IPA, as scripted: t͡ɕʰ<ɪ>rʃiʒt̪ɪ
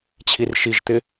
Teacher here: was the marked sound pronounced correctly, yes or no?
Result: no